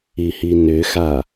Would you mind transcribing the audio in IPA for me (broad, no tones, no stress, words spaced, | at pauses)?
ihinʏxa